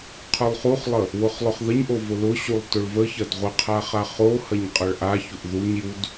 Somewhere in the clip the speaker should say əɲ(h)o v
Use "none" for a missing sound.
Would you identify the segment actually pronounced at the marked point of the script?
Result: ʔ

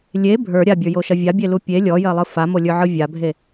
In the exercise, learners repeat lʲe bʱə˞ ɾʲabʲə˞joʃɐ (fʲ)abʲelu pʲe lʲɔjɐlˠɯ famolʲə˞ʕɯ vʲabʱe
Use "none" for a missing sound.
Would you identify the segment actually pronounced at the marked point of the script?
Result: vʲ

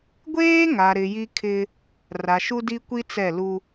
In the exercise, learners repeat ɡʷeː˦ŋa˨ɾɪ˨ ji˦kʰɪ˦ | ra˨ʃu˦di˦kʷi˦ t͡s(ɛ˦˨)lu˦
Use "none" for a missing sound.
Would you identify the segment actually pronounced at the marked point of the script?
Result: ɛ˦˨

